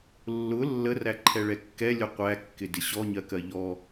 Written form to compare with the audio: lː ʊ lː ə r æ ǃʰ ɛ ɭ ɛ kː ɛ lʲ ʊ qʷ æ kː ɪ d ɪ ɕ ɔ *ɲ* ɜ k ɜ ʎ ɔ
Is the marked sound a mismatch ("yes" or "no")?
no